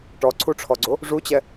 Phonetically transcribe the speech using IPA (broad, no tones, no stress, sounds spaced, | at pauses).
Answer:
ʈ ɔ ǀʰ u ʈ͡ʂʰ ɔ ɡ͡ǀ o | ʐ u t͡ɕ ɛ